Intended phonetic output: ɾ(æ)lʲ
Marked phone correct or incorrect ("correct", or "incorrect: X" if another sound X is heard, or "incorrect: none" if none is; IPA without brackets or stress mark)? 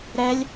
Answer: incorrect: ɛ